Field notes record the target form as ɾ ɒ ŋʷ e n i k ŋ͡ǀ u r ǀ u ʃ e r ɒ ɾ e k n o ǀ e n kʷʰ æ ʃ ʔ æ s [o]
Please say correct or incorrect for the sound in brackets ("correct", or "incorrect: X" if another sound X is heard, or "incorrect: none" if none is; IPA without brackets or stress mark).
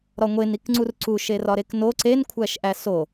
correct